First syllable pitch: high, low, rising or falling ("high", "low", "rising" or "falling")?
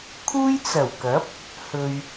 high